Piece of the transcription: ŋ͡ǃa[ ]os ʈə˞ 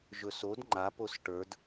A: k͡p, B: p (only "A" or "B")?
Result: B